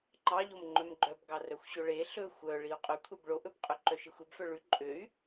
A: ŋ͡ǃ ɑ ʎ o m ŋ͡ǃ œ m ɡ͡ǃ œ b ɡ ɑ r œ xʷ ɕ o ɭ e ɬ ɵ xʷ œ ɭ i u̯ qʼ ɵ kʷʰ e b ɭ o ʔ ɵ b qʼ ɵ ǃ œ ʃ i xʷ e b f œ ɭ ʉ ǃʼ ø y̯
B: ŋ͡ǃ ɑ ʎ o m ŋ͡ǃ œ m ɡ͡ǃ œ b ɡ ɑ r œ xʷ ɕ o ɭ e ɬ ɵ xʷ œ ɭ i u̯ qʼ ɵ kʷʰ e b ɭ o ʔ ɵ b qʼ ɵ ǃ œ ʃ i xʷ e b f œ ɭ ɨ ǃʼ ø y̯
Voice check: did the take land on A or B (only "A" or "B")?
A